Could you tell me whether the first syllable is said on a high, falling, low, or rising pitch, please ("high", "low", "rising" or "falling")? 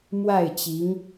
falling